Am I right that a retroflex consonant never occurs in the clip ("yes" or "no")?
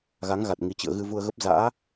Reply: yes